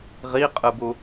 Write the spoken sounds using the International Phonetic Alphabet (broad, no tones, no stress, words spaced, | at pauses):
ʁiqʼɯbu